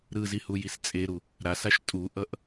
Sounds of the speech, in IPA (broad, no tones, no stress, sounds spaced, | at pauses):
ɾ ɯ z i h u j i s t͡sʼ e ɾ u | ɾ a s a ʃ tʼ u ʔ ʌ ʔ